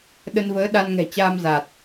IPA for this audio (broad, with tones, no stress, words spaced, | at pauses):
ɗə˧nvəː˨˦ ɗa˧nŋɛ̤˨˩ t͡ɕaː˧mza˨˩t̚